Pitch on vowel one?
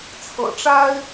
low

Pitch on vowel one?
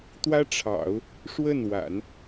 high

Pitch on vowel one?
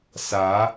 rising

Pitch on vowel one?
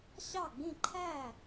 falling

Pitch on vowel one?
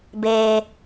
high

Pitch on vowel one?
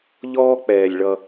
high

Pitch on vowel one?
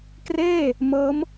falling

